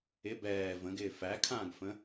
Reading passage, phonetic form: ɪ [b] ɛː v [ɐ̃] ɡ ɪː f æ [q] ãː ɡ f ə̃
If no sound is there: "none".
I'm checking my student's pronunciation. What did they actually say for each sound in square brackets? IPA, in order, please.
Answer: b, ə̃, kʰ

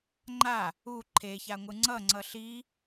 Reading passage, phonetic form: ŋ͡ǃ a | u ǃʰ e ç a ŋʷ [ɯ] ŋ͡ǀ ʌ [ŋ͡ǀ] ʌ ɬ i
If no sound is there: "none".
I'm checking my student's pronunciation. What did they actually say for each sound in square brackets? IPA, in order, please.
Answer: ɯ, ŋ͡ǀ

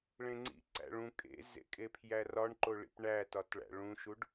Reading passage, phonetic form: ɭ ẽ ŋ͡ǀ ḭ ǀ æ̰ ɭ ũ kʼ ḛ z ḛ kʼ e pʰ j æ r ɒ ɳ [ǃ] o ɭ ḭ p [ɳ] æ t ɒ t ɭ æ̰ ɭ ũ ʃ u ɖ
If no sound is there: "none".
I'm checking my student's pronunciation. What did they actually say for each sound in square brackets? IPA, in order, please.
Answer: ǃ, ɳ

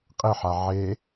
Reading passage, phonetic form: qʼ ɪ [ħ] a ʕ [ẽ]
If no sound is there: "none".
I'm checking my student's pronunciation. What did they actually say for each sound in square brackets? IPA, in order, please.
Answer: ħ, e

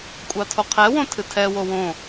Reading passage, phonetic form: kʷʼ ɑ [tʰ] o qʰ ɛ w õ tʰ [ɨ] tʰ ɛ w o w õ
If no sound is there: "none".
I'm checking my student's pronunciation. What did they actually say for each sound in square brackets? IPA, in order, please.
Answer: tʰ, ɨ

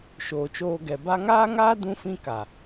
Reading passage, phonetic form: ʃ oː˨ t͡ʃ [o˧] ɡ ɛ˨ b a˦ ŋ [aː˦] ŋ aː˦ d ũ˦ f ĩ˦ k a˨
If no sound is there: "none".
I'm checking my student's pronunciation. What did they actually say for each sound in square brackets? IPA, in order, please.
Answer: oː˧, aː˦

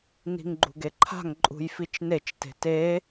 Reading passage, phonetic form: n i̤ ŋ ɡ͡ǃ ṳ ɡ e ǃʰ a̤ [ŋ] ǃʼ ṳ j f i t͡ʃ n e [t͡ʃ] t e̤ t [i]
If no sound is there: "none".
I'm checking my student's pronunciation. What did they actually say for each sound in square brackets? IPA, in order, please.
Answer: ŋ, t͡ʃ, e

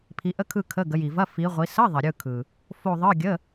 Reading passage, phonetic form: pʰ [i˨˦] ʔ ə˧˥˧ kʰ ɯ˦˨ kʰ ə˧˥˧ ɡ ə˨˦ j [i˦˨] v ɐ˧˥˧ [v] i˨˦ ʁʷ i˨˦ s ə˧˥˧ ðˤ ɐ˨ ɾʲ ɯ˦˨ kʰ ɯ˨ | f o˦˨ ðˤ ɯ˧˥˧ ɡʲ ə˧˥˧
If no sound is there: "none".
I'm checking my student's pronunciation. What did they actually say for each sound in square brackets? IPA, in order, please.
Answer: i˨˦, i˨, f

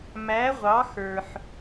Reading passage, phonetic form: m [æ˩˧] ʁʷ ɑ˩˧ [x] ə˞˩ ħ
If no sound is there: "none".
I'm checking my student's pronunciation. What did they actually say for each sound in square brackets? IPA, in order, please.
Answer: æ˩˧, x

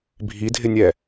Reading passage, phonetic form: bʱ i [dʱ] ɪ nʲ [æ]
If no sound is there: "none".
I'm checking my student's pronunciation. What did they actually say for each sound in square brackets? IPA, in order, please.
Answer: dʱ, ɛ

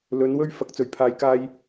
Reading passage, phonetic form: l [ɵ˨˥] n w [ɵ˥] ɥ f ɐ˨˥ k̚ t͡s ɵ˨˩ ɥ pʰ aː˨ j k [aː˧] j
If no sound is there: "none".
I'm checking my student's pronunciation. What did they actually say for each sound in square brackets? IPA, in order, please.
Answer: ɵ˨˥, ɵ˥, aː˧

